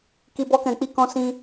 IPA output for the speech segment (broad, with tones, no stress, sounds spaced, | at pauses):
k i˨ b ɔ˧ k ɛ̃˨ k͡p i˧ k ɔ̃˧ s ĩ˧